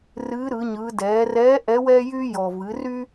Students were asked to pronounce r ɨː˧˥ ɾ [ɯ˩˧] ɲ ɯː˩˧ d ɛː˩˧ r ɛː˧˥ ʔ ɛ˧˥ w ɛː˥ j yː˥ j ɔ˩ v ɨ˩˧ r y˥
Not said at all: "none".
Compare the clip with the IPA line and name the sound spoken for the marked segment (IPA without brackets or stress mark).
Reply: ɯ˩˧